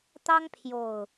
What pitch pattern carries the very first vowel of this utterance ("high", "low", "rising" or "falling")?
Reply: high